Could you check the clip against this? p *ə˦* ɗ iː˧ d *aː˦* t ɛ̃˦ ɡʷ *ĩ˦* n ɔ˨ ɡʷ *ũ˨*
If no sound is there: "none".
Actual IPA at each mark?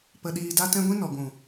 ə˧, a˦, ĩ˦, ũ˨

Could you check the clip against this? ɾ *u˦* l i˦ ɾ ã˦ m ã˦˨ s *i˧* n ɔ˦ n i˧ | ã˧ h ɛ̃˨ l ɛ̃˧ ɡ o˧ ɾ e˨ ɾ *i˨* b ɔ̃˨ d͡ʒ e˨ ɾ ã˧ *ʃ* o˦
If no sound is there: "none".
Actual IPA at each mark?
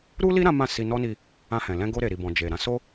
u˦, i˧, i˨, s

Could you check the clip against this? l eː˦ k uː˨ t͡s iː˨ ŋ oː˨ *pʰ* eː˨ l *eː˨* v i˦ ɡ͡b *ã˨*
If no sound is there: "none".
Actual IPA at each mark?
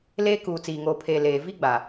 pʰ, eː˨, a˨

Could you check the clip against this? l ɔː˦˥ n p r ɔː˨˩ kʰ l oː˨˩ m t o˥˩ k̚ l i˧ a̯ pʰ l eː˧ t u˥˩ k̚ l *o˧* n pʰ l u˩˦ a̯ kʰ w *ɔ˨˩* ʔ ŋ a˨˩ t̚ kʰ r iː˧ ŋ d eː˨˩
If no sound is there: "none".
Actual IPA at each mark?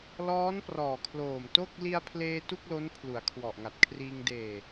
o˦˥, ɔ˨˩

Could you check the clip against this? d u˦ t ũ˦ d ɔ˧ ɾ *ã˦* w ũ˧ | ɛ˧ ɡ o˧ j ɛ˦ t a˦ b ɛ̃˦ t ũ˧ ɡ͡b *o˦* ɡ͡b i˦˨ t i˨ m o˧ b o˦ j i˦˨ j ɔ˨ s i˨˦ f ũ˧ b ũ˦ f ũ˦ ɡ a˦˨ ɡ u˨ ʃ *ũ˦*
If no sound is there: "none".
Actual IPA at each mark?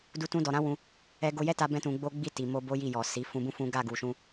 ã˦, o˦, ũ˧

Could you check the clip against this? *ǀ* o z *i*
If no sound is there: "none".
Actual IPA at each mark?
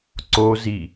ǀ, i

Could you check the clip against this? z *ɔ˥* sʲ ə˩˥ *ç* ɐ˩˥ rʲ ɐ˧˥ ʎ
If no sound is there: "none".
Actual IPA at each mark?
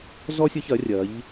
ɔ˥, ç

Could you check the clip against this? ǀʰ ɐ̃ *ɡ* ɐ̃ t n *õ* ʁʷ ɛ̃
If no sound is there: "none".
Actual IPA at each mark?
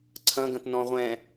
ɡ, ɔ̃

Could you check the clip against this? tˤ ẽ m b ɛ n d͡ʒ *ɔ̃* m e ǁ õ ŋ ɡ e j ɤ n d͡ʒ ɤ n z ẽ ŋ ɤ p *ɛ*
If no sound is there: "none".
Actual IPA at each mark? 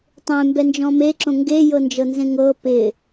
ɔ̃, ɪ

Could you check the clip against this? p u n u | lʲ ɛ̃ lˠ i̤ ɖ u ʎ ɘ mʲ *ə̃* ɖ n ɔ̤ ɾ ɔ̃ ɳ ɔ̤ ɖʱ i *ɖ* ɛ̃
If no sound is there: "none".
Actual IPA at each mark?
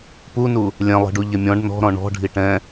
ɔ̃, ʈ

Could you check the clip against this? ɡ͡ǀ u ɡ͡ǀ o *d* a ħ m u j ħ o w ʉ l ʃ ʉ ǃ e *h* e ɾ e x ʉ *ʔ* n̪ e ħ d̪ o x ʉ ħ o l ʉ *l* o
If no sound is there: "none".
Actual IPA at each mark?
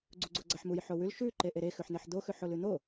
ɡ͡ǀ, ʔ, ħ, n̪

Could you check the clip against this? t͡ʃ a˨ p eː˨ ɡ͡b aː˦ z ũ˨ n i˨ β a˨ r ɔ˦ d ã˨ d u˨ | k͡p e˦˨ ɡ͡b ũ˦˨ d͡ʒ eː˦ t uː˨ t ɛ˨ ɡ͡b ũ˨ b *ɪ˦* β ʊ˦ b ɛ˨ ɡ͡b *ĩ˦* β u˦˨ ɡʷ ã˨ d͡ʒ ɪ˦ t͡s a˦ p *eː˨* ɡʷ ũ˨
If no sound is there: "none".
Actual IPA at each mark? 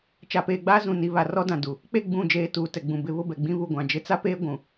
ɪ˦, ĩ˦, eː˦

